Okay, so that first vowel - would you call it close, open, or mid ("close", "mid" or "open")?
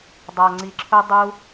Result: open